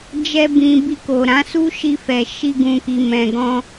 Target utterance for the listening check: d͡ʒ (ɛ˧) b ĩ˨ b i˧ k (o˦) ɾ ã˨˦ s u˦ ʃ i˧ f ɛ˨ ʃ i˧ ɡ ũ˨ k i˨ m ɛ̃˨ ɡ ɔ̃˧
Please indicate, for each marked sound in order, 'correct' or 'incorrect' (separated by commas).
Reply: correct, incorrect